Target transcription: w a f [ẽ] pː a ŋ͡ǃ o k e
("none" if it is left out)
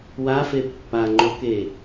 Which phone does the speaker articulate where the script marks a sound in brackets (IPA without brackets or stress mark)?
e